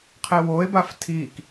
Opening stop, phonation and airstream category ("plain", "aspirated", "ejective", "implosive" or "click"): aspirated